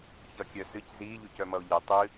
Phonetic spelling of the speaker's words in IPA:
ç ʌ kʲ œ s ɨ c z i ʎ u c œ m ʌ o̯ ʎ e tˤ ɨ

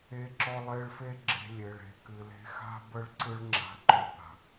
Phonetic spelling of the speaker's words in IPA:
e˧ ǁ ɔ˧ lˠ e˧ ɭ f e˦ ɡ͡ǁ e̤˧ lʲ e˨ ɭ e̤˧ k ɨ˨ l e̤˦ x a̤˦ b ə˦ ɭ ǀ ɯ˦ ɭ ŋ͡ǁ a̤˧ ǃ ɔ˧ b a̤˨

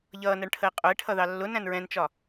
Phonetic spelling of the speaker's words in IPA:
ʎ ʌː n ɜ ɳ ʈʰ ə e̯ qʼ ʊ e̯ ʈʰ ʌ ð ɑ lː ʊ n æ̃ n ɹ ɛ̃ n t͡ʃ ɒ

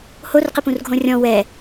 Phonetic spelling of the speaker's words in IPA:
h o r q ɪ p ũ r ɡʱ õ rʲ ɔ̃ w ɛ

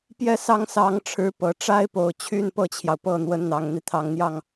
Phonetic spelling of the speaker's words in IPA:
p j ɛ˥˩ s ɑ˥ ŋ s ɑ˧˥ ŋ ʈ͡ʂʰ ɻ̩˧˥ p ɤ˨˩ ʈ͡ʂ a˥ ɪ̯ p o˨˩ ʊ̯ t͡ɕʰ y˥ n p ɤ˥˩ t͡ɕʰ j ɑ˩ ʊ̯ p ɤ˥˩ n̪ w ə˧˥ n n̪ ɑ˨˩ ŋ n̪ i˦ t̪ʰ ɑ˨˩ ŋ n̪ j ɑ˥˩ ŋ

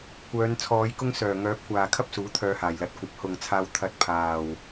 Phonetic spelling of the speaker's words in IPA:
kʷ œː˨˧ n t͡sʰ ɔː˨˧ j k ʊ˥ ŋ s œː˨˩ ŋ œː˨˥ p̚ kʷ aː˨ kʰ ɐ˥ p̚ s uː˨˥ t̪ʰ œː˧ h aː˨˩ j l ɐ˨ t̚ kʷ ɐ˨˥ p̚ h ʊ˨ ŋ t͡sʰ aː˧ w t̪ʰ ɐ˨ t̚ pʰ aː˨˩ w

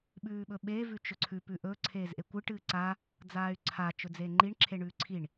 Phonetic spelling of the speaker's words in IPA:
ɓ ʉː ɓ ɵ ɓ e v ʉ t͡ʃ ɵ ǀʰ ʉ p ʉ ʔ ɵ ǀʰ eː z ʔ e kʷ ɨ ʈ ɨ ǀ a | d͡z aː y̯ ǀʰ a t͡ʃ ɵ d͡z eː ŋ͡ǃ i ɳ ǁʰ e ɳ ʉː ǀʰ i ɳ

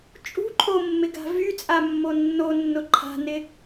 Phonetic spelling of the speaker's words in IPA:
t͡ʃʼ ṳ ǃʰ o mː ɪ ɡ a̤ v y t͡sʼ a mː o nː o nː ʊ ǃʰ a̤ n ɪ

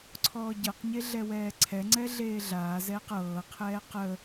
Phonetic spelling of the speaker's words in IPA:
ǀʰ ɔː ɟ ɤ q ɲ e ɮ ɛ w ɛː ǀʰ ɛ ŋ͡ǀ ɛ ɮ eː ɮ aː z ɛː q ɤː qʰ ɛː q ə

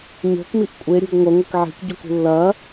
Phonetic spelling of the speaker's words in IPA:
ɲ o̤ k m i ʔ kʷʼ e ɾʲ o̤ ɡ ŋʷ ɐ ŋʷ ɨ k ʕ i̤ k ɟ o k ṳ lː ɐ

